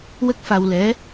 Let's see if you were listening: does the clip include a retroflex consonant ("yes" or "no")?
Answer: no